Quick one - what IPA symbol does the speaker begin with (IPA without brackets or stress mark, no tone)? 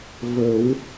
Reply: v